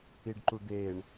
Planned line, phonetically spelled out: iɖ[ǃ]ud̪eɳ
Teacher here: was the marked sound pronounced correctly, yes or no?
yes